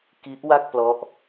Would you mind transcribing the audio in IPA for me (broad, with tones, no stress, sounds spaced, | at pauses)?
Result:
k i˦˥ ʔ w a˥˩ k̚ p l ɔ˦˥ ʔ